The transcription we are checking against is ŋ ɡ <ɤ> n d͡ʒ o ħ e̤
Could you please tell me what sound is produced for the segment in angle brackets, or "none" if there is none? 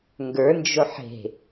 ə˞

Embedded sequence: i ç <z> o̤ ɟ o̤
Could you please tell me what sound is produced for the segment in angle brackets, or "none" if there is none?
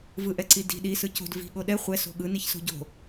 s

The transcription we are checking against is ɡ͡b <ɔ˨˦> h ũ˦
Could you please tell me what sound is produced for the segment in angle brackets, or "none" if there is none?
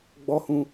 ɔ˦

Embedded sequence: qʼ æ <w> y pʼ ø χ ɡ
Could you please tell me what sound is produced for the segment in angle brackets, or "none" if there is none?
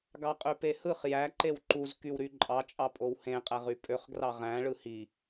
ʁ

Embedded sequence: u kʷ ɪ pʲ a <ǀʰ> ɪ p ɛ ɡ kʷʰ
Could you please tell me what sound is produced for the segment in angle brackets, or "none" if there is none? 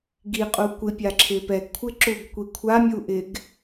ǁʰ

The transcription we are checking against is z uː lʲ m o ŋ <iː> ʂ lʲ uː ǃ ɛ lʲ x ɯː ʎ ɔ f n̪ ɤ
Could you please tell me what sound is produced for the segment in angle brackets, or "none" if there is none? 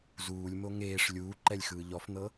eː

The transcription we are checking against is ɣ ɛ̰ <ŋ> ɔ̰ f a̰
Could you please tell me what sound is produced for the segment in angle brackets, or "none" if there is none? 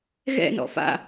n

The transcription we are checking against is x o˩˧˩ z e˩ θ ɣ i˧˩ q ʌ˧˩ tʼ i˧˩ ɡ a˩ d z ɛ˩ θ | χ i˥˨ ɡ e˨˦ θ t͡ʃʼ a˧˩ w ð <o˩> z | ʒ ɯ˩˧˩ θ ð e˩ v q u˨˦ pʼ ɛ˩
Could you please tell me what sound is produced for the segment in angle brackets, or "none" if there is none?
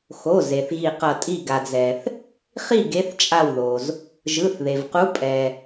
o˩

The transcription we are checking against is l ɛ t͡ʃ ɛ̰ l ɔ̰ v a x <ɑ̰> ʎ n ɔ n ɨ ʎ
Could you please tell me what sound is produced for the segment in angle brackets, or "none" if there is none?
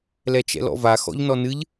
ɔ̰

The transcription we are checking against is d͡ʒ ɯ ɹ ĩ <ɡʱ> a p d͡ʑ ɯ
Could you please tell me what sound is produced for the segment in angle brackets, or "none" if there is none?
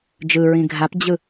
ɡʱ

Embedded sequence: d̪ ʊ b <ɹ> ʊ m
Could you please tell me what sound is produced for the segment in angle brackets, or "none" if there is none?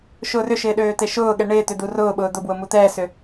w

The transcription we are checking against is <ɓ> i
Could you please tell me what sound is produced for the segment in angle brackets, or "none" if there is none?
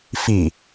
f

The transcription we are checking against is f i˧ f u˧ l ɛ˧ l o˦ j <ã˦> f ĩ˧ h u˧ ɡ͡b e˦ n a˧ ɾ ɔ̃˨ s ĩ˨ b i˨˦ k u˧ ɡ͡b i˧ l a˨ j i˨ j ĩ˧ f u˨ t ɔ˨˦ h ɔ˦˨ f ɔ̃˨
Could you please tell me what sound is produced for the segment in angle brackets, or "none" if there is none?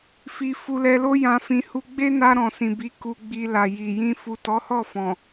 ã˧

